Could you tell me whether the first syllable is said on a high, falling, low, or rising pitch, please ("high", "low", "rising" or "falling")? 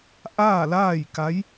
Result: falling